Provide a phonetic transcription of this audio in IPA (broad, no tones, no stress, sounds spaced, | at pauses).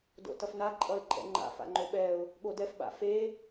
d o̰ t ʌ f n a ǃʼ ʌ ɪ̯ ǃʼ ɛ̰ ŋ͡ǃ a̰ f a̰ ŋ͡ǃ o ɓ ɛ ʊ̯ | ɠ o d ɛ f ɓ a̰ f e